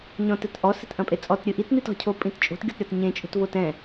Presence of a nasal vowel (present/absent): present